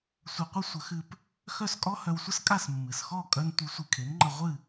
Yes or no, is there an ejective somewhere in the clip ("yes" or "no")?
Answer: yes